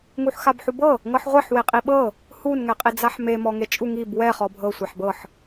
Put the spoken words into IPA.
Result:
ŋ u ħ x a b ħ u b ɤ | ŋ ɤ ħ ʁʷ e ħ w e qʼ i ɓ ɤ | h u n ŋ ɛ qʼ i d͡z a ħ m e m ɔ ŋ e t͡ʃʼ u ŋ i b w ɛ χ ɔ bʱ ɤ sʷ a ħ b ɤ ħ

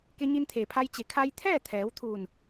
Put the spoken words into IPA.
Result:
k e˧ ɲ i˧ n t̪ʰ eː˩ pʰ a˧ j t͡ɕ e˩˧ kʰ a˧ j t̪ʰ ɛː˥˨ t̪ʰ ɛː˩˧ w t̪ʰ uː˧˩ n

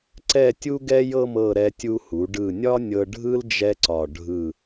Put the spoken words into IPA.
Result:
ǀ ɛ˥˧ tʲ u˥ ɡ ɛ˥ j ɤ˥˧ m ɤ˥˧ ɾ ɛ˧ tʲ u˧ h u˩˧ ɖ ɯ˧˩ nʲ ɒ˥ nʲ ɤ˧ ɖʱ ɯ˥ l d͡ʒ ɛ˥ ǀ ɒ˧˩ ɖʱ ɯ˧˩

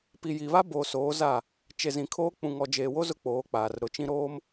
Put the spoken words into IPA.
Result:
p i˨ j i˨ β a˦ b o˨ s oː˨˦ z a˦˨ | t͡ʃ e˨ z ĩ˨ kʰ oː˦ k͡p ũ˨ ŋ ɔ˨ d͡ʒ eː˨ w o˦ z ʊ˦ k͡p oː˨˦ k͡p aː˨ r ɾ ʊ˨˦ t͡ʃ ĩ˦ ɾ oː˦ m

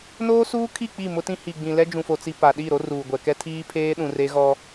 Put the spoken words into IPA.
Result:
n oː˦ s uː˦ kʰ i˦˨ k͡p i˦˨ m ʊ˦ t ĩ˦ h i˨ ɡ͡b ĩ˨ l ɛ˦ d͡ʒ ũ˨ f o˨ t͡s i˨ p a˨ ɗ i˦˨ ɾ o˦ r uː˨ ɡʷ ɛ˨ k ɛ˦ tʰ iː˦ pʰ eː˦ ɗ ũ˨ r e˦ ɣ ɔ˦

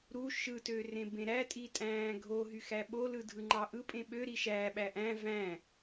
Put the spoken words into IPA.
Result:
ɾ u ʃ ɯ t ø r ẽ b ẽ ɾ æ tʼ i tʼ æ̃ː ɡʱ o ɦ y x æ ɓ o l ɯ dʱ ɯ ŋ͡ǃ ɑ ʔ ɯ pʼ ẽ ɓ ø ɾ i ʃ æ ɓ æ ʔ æ̃ v æ̃

